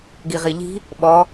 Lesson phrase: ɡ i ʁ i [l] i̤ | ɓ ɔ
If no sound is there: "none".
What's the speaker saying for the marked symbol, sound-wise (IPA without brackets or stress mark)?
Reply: ʎ